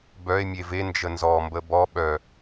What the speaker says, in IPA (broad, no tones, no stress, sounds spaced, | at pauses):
b œ e̯ mʲ e v e n d͡ʒ ə n z ɔ m b ə b ɔ ɓ œ